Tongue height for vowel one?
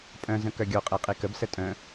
mid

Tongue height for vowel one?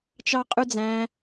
low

